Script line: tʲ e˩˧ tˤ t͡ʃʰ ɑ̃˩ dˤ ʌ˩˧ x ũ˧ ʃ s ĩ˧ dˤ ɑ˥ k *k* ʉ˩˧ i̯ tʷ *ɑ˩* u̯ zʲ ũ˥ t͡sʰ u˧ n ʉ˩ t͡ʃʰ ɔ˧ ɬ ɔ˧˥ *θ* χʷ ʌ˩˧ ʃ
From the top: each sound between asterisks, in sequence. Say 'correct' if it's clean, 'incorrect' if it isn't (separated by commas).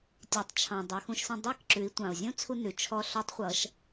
incorrect, incorrect, incorrect